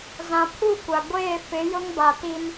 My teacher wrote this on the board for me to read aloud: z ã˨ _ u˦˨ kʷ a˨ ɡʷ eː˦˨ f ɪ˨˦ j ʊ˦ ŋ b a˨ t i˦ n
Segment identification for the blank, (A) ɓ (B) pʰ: B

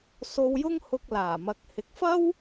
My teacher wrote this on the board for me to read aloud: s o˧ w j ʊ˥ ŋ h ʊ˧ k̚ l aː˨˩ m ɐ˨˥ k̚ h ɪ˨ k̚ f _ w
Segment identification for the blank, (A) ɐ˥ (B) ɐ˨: A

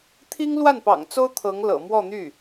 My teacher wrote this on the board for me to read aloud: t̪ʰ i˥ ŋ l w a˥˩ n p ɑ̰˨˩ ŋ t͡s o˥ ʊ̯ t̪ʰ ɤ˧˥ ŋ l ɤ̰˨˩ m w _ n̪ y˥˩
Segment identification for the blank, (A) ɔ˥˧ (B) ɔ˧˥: A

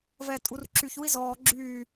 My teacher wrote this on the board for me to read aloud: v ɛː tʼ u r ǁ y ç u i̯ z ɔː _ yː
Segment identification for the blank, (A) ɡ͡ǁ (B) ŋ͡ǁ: A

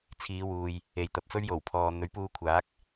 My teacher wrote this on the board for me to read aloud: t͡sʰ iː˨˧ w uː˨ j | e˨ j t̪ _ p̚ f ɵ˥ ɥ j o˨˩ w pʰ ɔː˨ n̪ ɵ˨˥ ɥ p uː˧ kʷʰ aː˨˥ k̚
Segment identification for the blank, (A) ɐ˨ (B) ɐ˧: A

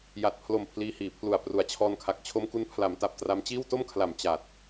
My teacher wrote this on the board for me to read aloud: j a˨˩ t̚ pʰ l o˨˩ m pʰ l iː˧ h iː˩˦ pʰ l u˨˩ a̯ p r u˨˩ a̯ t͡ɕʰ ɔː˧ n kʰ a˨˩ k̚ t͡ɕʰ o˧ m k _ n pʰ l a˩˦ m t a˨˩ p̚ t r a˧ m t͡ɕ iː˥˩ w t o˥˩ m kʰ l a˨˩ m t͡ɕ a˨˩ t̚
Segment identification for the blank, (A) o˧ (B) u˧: B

